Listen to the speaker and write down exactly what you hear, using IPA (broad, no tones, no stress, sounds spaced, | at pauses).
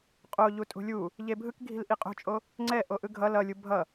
qʼ o ʎ u tʼ ṳ lʲ u | ʎ e bʱ ɯ k ɡʱ i̤ l ʔ i qʼ o̤ t͡ʃʼ o | ŋ͡ǀ ɛ ʔ o ʔ ɯ ɡʱ ʌ l ʌ lʲ u bʱ ʌ